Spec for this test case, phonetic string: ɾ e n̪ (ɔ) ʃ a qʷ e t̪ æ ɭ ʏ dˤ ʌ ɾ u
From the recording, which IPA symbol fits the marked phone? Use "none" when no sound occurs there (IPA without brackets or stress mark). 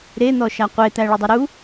ɔ